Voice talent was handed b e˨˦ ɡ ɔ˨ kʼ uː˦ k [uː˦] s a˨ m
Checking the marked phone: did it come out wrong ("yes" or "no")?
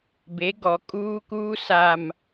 no